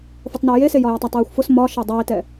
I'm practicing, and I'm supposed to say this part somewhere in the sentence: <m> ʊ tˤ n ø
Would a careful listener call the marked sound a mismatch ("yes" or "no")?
yes